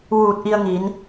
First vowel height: high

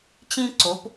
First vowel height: high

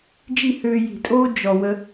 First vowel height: high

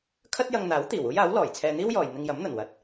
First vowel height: low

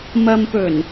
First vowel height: low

